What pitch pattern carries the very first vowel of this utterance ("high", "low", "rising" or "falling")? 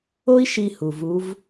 high